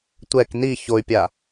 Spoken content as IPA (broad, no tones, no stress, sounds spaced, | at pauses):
tʷ ɛ k n i ç o y̯ pʲ a